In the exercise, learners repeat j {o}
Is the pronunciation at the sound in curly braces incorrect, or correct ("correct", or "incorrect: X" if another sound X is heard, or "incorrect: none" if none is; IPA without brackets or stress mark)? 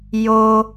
correct